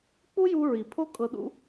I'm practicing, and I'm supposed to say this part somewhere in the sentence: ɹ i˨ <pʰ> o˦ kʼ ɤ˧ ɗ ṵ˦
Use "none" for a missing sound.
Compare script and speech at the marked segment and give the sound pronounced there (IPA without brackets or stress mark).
pʰ